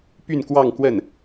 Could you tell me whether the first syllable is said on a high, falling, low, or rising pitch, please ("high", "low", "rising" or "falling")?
falling